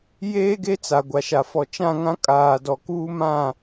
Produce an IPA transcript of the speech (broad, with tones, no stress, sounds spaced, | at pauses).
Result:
j eː˦ ɡ e˦ t͡s a˨ ɡʷ a˨ ʃ a˨ f ɔ˨ t͡ʃ ã˦˨ ŋ ã˦ kʼ aː˨ d ɔ˨ k uː˦ m ã˦˨